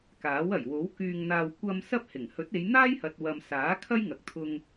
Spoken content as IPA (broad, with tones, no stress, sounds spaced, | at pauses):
k aː˨˥ w ɐ˨˩ j w o˨˥ w k yː˧ ŋ n̪ aː˧ w kʷ ɐ˧ m s ɐ˥ p̚ h ɪ˨˩ ŋ h ɵ˨˥ t̚ e˨˧ j n̪ aː˥ j h ɐ˨ t̚ w ɐ˨ m s aː˨˥ kʰ ɐ˥ j ŋ ɐ˨ k̚ t̪ʰ ʊ˧ ŋ